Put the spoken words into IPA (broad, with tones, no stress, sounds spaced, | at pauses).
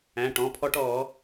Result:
æ̃˩˧˩ ʈ ɔ̃˩˧˩ pʰ ɔ˦ ʈ ɔː˨˩˦